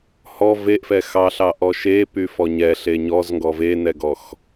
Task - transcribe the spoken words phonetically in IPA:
hɔ veʔfɛ xɑɬɑ ʔɔʃepy fɔɲɛ ɬeɲɔz ŋɡɔvenɛɡɔx

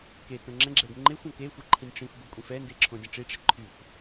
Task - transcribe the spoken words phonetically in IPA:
ke tõŋ͡ǁɛ̃ɡ͡ǁɛɡ ŋ͡ǃexʷ õkexʷi ǃʰĩnʲʈ͡ʂĩfbo kʷʼĩfɛnde ǁʰõdʲə̃ʈ͡ʂiʈ͡ʂɛ ǃʰyxʷ

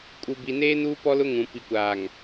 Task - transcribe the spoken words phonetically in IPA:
kʼu˨bi˨neː˦ nuː˦pɔ˦lʊ˦ ŋũ˨ pi˨kʷaː˨ŋ

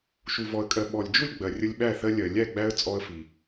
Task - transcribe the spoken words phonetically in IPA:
ʃu˨vɔ˨ə̯kʼɜ˨ ɓɔ˨lʲd͡ʒu˥˨lʲɡ͡bɜ˨ rʲə˦lʲɓæ˥˨θɜ˦lʲɜ˨ lʲæ˥˨ɡ͡bæ˦ə̯ t͡sʼɔ˦ə̯fi˨

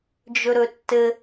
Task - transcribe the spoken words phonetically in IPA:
d͡ʒɵɾɵtːɘ

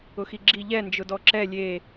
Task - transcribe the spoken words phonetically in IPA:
ʊxiɡ͡ǁi ʎɛ nd͡ʒʊdɔǁɛ lʲe

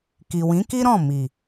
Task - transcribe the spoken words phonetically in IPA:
ki˨wĩ˨˦ki˦ ɾɔ̃˦˨mi˨

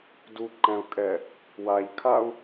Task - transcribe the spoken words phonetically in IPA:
duǃɛ̃u̯kʼɛ | waʎkʰau̯

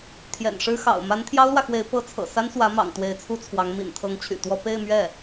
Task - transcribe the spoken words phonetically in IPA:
t̪ʰjɛ̰˨˩nʂɻ̩˥xɑ̰˨˩ʊ̯ ma˧˥nt̪ʰjɑ˥ʊ̯lwä˨xwe˧˥ɪ̯ pɤ˧˥t͡sʰɤ̰˨˩ sa˥nswä˧˥ mɑ̰˨˩ŋ t̪we˧˥ɪ̯t͡sʰu˥t͡sʰwɑ˧˥ŋ mḭ˨˩nt̪ʰɤ˧˥ŋt͡ɕʰy̰˨˩t̪wɔ˥˧ pe˥˧ɪ̯mɥɛ˥˩

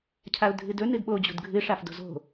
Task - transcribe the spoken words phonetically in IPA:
cʰaʊ̯dʱɨdɵ nɨdɓo d͡ʑṳdɡʱɨ ʂafdo̤zo̤

